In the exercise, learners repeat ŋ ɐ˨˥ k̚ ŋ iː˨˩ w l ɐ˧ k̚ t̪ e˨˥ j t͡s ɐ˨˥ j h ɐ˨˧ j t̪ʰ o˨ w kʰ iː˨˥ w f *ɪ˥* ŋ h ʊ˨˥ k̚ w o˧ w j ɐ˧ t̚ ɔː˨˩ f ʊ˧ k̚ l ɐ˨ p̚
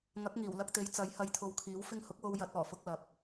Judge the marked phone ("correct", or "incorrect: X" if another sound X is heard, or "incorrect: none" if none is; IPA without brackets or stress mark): incorrect: ɪ˧